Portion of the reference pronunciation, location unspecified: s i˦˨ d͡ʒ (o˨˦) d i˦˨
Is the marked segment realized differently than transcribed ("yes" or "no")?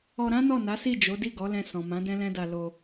no